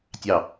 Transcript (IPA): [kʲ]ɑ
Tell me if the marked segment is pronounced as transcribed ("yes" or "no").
no